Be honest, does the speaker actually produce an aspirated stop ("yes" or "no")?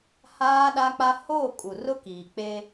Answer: no